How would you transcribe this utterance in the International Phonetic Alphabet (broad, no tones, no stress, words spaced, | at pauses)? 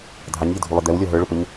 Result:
dʱɑɲʎədʱulˠʌ d̪ɛwlʲɔ ɦə˞ɭʊpəɲ